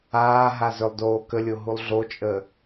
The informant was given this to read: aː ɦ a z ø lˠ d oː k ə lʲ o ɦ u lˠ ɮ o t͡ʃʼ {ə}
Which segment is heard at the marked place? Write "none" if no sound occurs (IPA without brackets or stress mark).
ə